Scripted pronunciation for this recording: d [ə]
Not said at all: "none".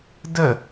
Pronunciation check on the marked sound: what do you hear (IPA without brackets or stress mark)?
ə